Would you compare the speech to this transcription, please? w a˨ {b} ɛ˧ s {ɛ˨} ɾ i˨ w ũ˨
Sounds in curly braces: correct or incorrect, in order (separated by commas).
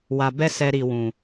correct, correct